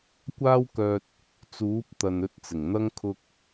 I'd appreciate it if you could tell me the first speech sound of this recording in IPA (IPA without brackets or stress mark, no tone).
kʷ